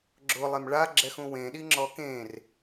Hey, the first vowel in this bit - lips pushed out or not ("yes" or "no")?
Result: yes